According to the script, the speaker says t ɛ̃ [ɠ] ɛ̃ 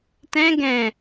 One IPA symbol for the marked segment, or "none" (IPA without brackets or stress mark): ɡ